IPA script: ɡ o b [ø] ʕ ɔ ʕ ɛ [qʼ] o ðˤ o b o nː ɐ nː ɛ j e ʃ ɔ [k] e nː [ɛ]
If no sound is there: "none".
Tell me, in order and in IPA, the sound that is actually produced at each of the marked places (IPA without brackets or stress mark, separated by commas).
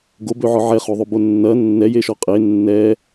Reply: ø, χ, qʼ, ɛ